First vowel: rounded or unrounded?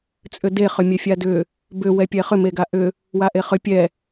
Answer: rounded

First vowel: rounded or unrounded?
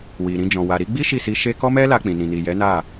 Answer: unrounded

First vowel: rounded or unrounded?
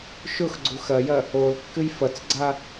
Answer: rounded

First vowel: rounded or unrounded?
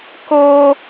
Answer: rounded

